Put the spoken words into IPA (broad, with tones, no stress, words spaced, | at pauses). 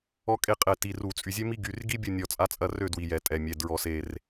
ɔ˦kʼe˥˩ qʼɛ˧˩ti˩˧˩ru˧˩˧t͡sʼy˧˩ zʲø˦mi˦ ɡy˩˧˩rɡi˦ bʲu˥˩nʲɔ˧˩ t͡sʼa˦t͡sʼɐ˥˩rø˥˩ dwi˧˩jɛ˧˩˧tʼɛ˩˧˩mʲɛ˩˧˩ dɹɔ˧˩˧se˧˩r